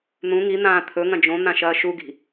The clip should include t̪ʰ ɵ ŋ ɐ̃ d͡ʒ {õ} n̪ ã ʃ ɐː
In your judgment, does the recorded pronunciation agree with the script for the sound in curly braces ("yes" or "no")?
yes